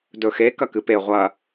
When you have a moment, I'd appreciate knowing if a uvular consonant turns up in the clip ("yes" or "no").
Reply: yes